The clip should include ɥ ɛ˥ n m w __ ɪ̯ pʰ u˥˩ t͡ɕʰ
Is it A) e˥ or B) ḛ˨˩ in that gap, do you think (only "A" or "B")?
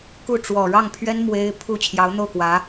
A